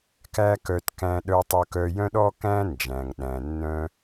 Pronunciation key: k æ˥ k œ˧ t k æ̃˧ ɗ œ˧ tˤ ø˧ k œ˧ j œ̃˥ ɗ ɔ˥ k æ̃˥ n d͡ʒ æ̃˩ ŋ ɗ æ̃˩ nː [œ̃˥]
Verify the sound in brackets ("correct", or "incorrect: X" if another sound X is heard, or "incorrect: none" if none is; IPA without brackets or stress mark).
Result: incorrect: œ̃˧